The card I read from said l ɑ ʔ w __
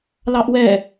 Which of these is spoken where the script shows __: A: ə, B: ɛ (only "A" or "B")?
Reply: B